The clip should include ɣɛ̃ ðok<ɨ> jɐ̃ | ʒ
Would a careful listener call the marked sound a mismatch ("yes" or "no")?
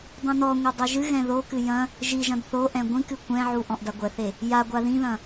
no